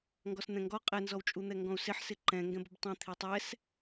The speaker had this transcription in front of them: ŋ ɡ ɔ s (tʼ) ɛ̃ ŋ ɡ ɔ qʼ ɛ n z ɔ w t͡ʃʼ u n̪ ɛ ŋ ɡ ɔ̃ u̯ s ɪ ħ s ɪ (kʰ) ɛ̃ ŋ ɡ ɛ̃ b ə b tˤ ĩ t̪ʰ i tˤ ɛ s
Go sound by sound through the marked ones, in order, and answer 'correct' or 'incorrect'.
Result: incorrect, incorrect

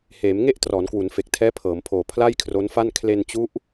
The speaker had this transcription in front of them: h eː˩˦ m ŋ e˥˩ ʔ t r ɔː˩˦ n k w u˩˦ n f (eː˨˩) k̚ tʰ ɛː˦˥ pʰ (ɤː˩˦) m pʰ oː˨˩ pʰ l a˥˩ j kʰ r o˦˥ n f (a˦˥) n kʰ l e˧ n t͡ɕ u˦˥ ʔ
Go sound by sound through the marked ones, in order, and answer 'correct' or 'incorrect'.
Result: incorrect, correct, incorrect

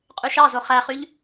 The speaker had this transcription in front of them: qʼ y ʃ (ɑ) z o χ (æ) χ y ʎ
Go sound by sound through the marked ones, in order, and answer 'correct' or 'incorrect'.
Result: correct, correct

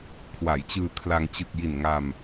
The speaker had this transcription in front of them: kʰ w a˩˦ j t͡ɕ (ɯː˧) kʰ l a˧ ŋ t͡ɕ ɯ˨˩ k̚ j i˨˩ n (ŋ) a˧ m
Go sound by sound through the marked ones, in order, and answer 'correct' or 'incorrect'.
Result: correct, correct

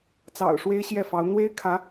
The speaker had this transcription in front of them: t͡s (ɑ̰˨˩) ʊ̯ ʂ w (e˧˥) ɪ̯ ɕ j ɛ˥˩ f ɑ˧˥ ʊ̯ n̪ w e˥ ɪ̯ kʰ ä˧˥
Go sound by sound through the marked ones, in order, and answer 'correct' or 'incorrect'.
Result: correct, incorrect

